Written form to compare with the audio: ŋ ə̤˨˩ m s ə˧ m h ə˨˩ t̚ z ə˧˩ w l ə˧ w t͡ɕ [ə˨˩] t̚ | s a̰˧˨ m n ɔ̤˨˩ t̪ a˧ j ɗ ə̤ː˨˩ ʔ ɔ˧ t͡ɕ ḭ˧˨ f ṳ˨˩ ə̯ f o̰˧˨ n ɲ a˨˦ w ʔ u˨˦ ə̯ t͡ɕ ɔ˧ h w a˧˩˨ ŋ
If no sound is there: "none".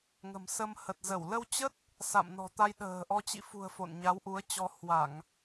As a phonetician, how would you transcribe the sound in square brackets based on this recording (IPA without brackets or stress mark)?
ə˦˥